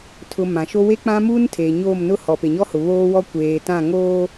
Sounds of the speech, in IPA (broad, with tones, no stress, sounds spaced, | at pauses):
tʰ ʊ˨ m ã˨ ʃ o˦ w e˦ k͡p ã˦ m uː˦ n tʰ eː˨ ɲ oː˦˨ m n ʊ˦ h ɔ˨ p e˨ ɲ ɔ˦ h ʊ˨ β oː˦ w ɔ˦ kʷ eː˨ t ã˦˨ ŋ oː˦